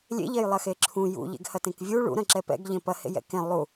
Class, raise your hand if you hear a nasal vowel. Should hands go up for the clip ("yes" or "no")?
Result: yes